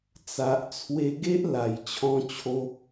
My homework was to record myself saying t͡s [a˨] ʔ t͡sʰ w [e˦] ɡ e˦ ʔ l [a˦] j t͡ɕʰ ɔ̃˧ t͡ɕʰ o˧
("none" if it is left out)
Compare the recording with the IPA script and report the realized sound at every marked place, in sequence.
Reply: a˨, e˧, a˨˩

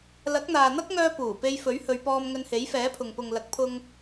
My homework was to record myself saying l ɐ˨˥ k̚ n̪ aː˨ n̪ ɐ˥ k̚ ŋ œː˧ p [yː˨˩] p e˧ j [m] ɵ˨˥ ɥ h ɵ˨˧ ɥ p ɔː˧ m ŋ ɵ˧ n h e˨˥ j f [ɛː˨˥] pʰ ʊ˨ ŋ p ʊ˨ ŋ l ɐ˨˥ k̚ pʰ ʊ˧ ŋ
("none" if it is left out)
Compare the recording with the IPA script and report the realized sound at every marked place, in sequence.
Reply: uː˨˩, f, ɛː˨˥

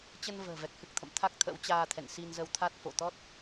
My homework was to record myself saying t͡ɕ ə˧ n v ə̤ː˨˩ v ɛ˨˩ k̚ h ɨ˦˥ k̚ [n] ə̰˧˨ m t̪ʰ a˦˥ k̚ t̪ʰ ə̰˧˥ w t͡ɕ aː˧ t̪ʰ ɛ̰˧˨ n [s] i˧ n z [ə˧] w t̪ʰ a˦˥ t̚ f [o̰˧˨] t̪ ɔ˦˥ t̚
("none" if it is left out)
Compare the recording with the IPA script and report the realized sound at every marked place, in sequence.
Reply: t̪ʰ, s, ə˧, o̰˧˨

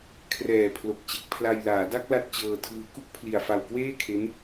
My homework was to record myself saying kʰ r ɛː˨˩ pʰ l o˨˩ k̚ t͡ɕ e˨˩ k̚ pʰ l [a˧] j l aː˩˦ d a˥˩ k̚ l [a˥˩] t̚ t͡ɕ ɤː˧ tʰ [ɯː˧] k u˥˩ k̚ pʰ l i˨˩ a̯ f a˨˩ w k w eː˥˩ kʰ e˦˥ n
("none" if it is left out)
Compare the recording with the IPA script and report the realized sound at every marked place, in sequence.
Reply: a˧, a˥˩, ɯː˧

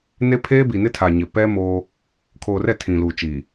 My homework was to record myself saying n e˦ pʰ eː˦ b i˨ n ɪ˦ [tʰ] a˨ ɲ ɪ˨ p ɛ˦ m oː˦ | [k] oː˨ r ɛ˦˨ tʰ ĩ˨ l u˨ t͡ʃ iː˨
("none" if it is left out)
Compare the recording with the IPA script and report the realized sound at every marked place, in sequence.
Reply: tʰ, kʰ

